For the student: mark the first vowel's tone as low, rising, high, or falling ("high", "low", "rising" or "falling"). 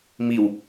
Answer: low